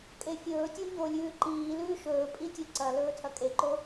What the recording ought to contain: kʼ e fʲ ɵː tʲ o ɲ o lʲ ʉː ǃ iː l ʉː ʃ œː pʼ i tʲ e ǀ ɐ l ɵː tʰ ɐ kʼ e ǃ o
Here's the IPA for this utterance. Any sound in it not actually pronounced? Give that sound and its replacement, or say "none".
œː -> ɵː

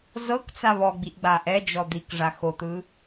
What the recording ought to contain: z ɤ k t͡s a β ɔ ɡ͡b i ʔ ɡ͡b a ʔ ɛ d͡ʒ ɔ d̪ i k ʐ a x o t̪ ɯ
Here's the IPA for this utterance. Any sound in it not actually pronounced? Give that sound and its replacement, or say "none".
none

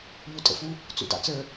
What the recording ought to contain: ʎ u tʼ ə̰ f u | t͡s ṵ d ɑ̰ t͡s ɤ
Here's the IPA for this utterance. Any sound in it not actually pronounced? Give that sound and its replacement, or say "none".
ɤ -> ə˞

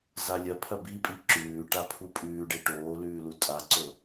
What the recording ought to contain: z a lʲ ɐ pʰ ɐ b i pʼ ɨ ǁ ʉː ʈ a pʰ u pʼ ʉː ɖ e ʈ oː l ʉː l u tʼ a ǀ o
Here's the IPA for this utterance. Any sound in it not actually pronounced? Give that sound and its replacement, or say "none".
ɨ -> i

